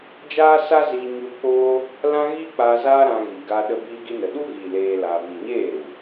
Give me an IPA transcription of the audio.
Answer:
d͡ʒ aː˦ s a˦ z iː˦ ɲ u˦ k͡p oː˦ | l ã˦ ɣ i˦ k͡p aː˧ z aː˦ ɾ ã˧ ɣ i˨ ɡ a˧ ɗ ə˧ b iː˧ ɡ i˧ n ə˨ ɗ u˦ ɣ iː˨ l eː˦ l a˧ v i˨ ɲ eː˦˨ ɾ u˨

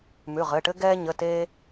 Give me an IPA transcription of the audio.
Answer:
m ʉ˩˧˩ ʁ ɘ˩˧˩ ʈ ɘ˦ ɡ ɛː˦ ɲ ə˩˧˩ t e˦

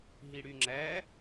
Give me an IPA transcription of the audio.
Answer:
ɦ i ɽ y ŋ͡ǁ æ

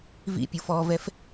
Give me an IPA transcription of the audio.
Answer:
v ḭ pʲ u f ɔ v ɛ f

